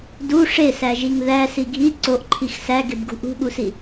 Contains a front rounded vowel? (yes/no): no